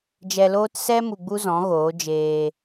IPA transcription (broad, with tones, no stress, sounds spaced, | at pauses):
d͡ʒ ɛ˧ l oː˦ t s ɛ˦ m u˧ ɡ͡b u˦ z ɔ̃˨˦ ɣ oː˨˦ d͡ʒ eː˧